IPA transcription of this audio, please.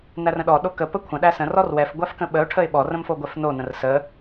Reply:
n æ r ə̃ ɗ ɔ ɗ o k ə p ə kʷʰ ə̃ ɗ æ s ə̃ r ɔ r w ɛ f ɡʷ æ f k ə̃ ɓ ə ʊ̯ ʈʰ ə ɪ̯ ɓ ɔ r ə̃ m f o ɡʷ ɛ f n o n ə̃ r s ə

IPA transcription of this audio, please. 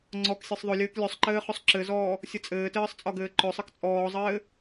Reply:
ŋ͡ǀ ɔ k sʲ ɛ sˤ ðˤ ɵ lʲ ɘː k lʲ ɵ sˤ ǃ ɘː χ ɵ sˤ ǁ ɘ z ɔː | sʲ ɘ t͡sʼ ɘː t ɘː sˤ t͡sʼ ɒ ɡ ɘː ǃ ɵ sˤ ɨ k t͡sʼ ɔː zˤ ɘː

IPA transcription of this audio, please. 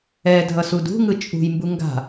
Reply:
ɛ dʱ ʌ s u d ṳ ŋ ɯ t͡ʃʼ ṳ j m b u ŋ ɡ a̤

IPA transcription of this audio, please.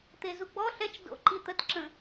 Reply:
t̪ e z u ɡ͡b ɔ ɬ ɛ t͡ʃ d o̰ ǃ i t̪ ə t ǁ ə̃

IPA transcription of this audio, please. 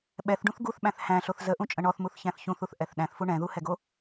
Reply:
ɓ ɛ θ ɖ ũ θ ɡ u θ ɓ æ̃ θ h æ̃ ɬ o θ z ə ʔ ũ t͡ʃʼ ə̃ ɳ ɔ θ m u θ ç æ̃ θ ç ũ θ u θ ʔ ɛ θ ɗ æ̃ θ f u ɳ ɛ̃ ð u h ɛ ɡ o

